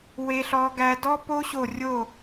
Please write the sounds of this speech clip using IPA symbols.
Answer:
w e˦˥ ɬ ɔ˦˥ ɡ æ˦˥ d ɔ˦˥ p o˦˥ ɕ o˦˨ rʲ o˦˨

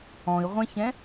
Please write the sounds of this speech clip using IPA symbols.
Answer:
ɔ̃ i̯ ʁʷ ɛ̃ ç ɛ̃

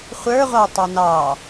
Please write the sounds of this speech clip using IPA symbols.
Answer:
χʷ ə˞ ʁʷ ɑ tˤ o n ɑ

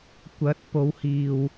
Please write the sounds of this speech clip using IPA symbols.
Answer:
kʷ ɐ˨˥ t̚ p o˨˧ w h iː˨ w

